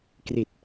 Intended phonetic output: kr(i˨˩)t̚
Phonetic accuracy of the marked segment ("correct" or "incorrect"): correct